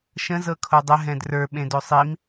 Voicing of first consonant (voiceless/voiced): voiceless